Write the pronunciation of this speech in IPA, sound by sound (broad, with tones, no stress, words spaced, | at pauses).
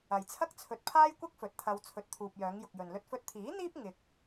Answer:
ɐ˨jt͡sʰɐ˥k̚t͡sʰɵ˧t̚ pʰaː˥jkʷɐ˥k̚ fɵ˨t̚t̪ʰɐ˧w t͡sʰɵ˨t̚t̪ʰuː˨p̚ jœː˨˧ŋjʊ˨k̚jɵ˨n lɵ˧t̚fɵ˧t̚t̪ʰiː˨˥n̪iː˥p̚ ŋɪ˧k̚